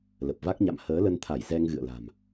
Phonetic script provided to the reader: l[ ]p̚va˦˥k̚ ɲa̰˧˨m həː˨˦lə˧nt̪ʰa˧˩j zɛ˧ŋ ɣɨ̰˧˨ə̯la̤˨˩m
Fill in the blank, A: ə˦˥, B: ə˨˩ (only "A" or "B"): B